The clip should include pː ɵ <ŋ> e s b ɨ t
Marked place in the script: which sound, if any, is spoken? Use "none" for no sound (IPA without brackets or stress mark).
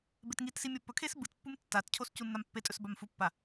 kʰ